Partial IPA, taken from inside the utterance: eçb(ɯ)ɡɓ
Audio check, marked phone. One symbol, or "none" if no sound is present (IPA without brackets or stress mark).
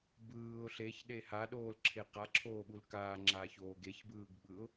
ɯː